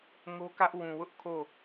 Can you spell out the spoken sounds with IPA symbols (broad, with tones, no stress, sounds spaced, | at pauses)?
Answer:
ŋ o˦ k ä˦ ʔ w ũ˨ w ʊ˦ ʔ kʰ o˦˨